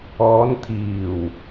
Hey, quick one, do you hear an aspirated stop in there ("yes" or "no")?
yes